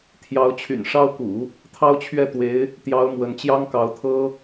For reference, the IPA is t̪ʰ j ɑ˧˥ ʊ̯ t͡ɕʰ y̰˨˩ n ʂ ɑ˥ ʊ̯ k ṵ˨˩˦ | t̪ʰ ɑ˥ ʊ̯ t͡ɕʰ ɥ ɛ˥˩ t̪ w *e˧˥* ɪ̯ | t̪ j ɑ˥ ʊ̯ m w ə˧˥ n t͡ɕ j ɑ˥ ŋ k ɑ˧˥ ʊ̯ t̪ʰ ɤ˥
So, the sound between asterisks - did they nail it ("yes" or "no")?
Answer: yes